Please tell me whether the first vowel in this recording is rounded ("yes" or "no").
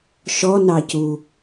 yes